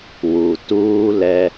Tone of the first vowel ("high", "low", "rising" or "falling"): low